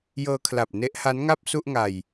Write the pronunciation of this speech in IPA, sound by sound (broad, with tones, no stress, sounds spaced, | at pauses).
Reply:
j ɤː˧ kʰ l a˨˩ p̚ n e˦˥ ʔ h a˦˥ n ŋ a˥˩ p̚ s u˥˩ ʔ ŋ a˨˩ j